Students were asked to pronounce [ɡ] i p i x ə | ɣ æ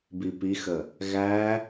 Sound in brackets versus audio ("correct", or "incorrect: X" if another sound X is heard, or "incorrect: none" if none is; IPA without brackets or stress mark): incorrect: b